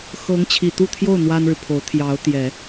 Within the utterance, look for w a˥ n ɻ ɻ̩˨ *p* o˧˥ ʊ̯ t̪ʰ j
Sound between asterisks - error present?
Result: yes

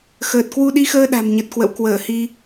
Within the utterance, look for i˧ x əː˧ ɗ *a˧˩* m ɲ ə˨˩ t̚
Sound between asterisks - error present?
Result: yes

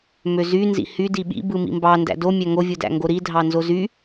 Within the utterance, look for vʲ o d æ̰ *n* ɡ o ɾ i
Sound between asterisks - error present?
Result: yes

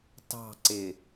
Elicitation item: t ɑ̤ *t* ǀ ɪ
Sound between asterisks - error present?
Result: yes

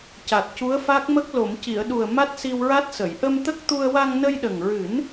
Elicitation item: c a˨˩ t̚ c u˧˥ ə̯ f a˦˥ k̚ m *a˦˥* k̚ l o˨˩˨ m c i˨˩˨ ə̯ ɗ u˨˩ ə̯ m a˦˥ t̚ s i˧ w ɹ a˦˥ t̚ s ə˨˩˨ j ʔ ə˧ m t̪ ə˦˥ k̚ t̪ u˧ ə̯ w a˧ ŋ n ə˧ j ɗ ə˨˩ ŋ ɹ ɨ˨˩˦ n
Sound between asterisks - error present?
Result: yes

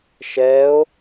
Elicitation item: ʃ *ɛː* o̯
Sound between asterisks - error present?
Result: no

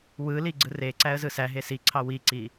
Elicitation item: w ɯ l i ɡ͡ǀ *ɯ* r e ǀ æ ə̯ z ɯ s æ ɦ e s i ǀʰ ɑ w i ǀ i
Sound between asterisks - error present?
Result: no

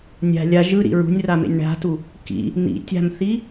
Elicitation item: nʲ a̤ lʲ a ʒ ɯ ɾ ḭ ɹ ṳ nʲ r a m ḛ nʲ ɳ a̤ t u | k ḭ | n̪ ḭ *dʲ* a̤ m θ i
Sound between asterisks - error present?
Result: yes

